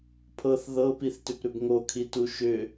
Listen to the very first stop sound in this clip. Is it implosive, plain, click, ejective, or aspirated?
aspirated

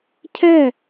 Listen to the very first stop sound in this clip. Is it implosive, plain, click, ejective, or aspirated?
aspirated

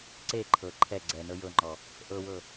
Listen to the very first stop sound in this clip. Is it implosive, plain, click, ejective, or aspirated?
click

